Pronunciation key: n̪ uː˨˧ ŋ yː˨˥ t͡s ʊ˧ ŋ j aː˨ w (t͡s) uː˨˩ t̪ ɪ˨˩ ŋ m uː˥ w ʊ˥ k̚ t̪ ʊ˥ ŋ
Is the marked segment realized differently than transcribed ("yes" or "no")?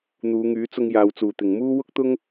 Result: no